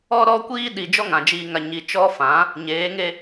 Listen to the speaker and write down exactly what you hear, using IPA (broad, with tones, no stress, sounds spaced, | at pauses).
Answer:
ɔ˦ ɾ ɔ˦ kʷ iː˦ ɗ i˨ d͡ʒ ɔ˦ ŋ ã˨ d͡ʒ iː˨ ŋ a˨ ɲ i˨ t͡ʃ ɔ˦ f ã˨˦ | ɲ eː˨˦ ŋ e˦